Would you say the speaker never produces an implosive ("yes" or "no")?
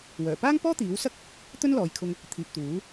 yes